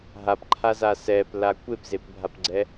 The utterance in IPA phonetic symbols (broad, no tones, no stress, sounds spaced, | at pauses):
ɦ a p ǃʰ a z a s ɛ p l a kʷ e p z e p bʱ a p ɡ͡ǀ ɛ